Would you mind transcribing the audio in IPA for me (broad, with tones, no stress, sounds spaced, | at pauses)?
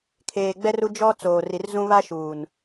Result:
kʰ eː˨ ɡ͡b ɛ˦ r u˦ d͡ʒ ɔ˦ t͡s oː˨ r i˨ r z ũ˦ β a˦ ʃ uː˨ n